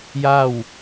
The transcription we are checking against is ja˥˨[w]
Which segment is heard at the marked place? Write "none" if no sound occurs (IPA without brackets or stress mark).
w